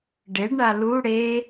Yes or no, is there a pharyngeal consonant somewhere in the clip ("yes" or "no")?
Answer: no